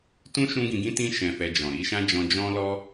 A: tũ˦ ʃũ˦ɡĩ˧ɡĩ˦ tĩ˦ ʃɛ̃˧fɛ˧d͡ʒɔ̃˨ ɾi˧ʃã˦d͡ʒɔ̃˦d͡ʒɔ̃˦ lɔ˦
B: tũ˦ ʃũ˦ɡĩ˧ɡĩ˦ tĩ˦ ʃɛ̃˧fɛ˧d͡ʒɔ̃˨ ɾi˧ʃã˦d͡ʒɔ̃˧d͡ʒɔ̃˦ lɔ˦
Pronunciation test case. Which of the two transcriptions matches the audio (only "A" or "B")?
B